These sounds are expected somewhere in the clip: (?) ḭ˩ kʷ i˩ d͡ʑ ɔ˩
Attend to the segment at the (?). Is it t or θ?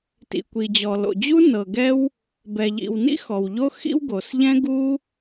t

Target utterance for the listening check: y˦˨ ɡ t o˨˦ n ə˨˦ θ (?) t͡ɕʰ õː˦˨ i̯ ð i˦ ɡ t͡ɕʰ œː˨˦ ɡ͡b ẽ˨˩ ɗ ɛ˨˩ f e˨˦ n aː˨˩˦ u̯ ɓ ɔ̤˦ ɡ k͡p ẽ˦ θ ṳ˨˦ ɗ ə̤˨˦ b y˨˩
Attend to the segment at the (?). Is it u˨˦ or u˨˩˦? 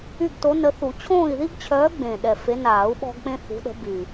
u˨˩˦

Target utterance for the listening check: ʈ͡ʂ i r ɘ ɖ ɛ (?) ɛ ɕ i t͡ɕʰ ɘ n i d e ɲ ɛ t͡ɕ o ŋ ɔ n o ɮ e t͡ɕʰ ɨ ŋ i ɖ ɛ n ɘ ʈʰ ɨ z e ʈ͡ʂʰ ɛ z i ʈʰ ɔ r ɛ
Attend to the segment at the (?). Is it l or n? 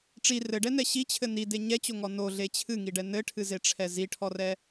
n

